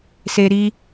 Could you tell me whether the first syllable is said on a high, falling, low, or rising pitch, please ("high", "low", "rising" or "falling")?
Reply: high